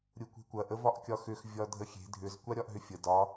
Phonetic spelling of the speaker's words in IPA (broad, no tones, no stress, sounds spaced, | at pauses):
ɾʲ u kʷ e̤ kʷ ɐ ʔ ə v ɒ ʔ kʲ ɒ x ʏ x vʲ ɒ dʱ ə xʲ e̤ dʱ ʏ z kʷ a ɾʲ ɒ ʔ ɦ ʏ fʲ ə d ɒ